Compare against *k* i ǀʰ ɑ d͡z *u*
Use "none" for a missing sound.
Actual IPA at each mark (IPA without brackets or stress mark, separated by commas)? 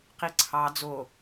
q, o